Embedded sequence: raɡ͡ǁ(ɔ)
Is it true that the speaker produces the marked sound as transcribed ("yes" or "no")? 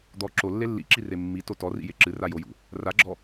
yes